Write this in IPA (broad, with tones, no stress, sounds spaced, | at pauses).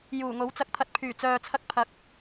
j uː˨˩ ŋ o˨˥ w t͡s ɐ˧ k̚ t̪ʰ ɐ˧ t̚ pʰ yː˨˩ t͡s œː˨ t͡sʰ ɐ˧ k̚ pʰ ɐ˨˥ k̚